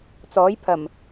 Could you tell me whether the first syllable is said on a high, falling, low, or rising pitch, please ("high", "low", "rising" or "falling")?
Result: rising